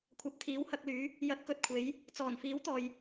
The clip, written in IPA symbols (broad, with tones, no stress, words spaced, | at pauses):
kʷʰɐ˨p̚t̪ʰiː˨˥whɐ˧k̚lyː˨˥ | jɐ˨˥t̚kɵ˨t̚kʷʰe˨˧j | t͡sɔː˨˩nfiː˨˥w t̪ɔː˨j